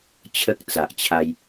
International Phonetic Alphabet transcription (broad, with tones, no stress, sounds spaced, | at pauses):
t͡ɕʰ ə˦ k̚ t͡s a˨ ʔ t͡ɕʰ a˧ j